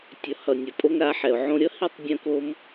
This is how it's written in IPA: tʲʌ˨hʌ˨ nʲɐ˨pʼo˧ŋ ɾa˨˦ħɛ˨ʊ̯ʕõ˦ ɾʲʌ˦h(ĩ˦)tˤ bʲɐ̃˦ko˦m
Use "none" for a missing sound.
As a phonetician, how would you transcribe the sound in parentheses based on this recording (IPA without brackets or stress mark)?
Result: i˦